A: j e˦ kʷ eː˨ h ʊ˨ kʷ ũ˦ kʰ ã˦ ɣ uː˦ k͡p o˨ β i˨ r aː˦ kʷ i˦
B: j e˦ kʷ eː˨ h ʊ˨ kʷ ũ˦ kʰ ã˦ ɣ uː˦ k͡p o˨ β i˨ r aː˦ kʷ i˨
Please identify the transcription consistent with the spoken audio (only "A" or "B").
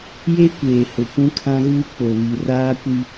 A